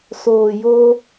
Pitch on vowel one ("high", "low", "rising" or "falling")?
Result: low